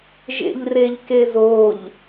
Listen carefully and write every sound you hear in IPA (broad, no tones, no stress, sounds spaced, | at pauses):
ʒ ḛ ʎ r e ʎ k e z o ʎ